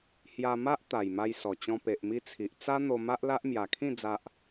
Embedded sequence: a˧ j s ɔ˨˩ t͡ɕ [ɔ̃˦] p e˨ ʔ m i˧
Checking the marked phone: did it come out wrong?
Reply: yes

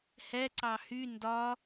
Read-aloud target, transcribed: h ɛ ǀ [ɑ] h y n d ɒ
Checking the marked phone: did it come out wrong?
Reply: no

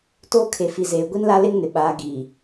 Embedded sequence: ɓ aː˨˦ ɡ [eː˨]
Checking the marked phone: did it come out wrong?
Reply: yes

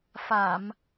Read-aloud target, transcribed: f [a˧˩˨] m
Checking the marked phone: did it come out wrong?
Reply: no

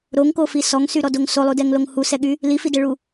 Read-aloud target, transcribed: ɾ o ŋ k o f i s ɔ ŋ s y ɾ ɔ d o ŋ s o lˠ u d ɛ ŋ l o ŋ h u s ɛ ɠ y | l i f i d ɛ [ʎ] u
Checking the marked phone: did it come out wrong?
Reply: yes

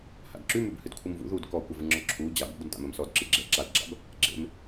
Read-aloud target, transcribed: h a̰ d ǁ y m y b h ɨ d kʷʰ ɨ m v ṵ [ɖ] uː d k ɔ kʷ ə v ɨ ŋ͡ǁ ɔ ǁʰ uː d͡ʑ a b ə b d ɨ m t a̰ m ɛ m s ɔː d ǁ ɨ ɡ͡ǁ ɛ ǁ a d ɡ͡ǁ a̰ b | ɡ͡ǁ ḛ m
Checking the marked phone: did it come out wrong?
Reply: yes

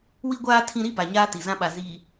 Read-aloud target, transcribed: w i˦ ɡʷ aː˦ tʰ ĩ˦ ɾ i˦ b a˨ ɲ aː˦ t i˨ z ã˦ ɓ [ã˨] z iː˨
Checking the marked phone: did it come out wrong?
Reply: yes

